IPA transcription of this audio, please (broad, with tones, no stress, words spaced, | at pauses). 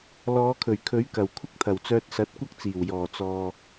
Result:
lɔː˨˧kʰɵ˨˩ɥkʰɵ˨˥ɥkɐ˨˩w kʷʰɪ˥k̚t̪ʰɐ˨˩wt͡sœː˧t̚ sɐ˨˥t̚kʷɐ˥k̚t͡siː˨˩w jɔː˨˩t͡sɔː˨